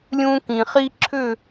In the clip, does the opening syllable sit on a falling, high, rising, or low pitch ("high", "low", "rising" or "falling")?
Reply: high